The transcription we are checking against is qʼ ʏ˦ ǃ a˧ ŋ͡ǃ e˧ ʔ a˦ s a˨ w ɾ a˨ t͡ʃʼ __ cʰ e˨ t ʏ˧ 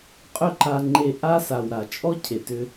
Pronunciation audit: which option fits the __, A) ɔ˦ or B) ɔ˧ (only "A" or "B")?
A